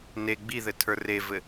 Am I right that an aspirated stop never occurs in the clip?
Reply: no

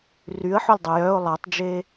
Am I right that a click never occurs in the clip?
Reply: yes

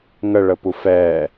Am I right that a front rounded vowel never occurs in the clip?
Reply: yes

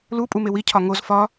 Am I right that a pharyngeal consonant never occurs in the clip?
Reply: yes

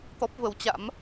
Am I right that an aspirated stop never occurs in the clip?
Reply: yes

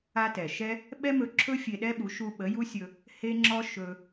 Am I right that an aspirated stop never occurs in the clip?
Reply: no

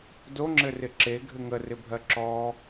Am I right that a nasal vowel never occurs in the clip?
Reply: yes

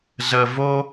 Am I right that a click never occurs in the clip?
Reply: yes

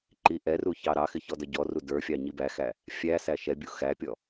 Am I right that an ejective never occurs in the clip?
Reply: yes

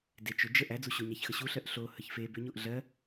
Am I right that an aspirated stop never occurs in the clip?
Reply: yes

